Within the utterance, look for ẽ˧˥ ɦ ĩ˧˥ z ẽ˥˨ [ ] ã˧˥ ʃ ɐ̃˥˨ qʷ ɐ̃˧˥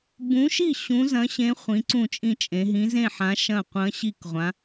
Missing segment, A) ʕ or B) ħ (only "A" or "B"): B